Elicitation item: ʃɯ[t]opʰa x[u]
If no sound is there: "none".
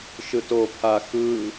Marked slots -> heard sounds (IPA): t, ɯ

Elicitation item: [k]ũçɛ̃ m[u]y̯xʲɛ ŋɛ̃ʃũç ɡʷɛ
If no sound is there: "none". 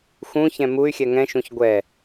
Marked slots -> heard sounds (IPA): x, u

